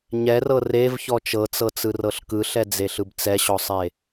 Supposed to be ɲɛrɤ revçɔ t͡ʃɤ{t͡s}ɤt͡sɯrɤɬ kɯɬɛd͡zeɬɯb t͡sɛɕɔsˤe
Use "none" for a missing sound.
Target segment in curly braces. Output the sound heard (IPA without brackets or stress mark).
t͡s